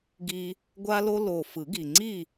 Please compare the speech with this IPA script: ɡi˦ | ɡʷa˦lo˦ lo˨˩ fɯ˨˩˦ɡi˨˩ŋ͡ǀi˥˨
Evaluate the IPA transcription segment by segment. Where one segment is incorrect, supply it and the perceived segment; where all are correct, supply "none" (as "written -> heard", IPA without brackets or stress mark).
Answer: none